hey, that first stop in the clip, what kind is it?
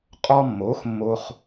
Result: ejective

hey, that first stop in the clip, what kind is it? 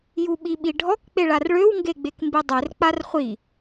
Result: implosive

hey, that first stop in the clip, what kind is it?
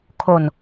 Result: aspirated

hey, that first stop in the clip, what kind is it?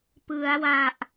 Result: plain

